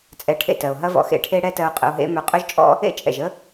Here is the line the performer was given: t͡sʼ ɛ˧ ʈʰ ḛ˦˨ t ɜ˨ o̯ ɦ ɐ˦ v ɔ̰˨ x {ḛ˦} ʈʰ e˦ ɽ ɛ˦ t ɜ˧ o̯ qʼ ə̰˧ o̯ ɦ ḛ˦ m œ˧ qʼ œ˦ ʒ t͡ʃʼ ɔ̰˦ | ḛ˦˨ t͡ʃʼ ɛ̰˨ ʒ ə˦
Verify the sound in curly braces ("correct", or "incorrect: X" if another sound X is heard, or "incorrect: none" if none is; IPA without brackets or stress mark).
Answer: correct